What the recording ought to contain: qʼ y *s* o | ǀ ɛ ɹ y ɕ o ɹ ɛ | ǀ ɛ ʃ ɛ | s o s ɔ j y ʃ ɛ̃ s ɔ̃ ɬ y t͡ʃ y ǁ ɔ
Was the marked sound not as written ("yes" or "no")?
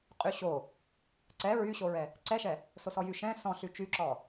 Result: yes